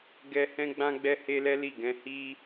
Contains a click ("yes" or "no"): no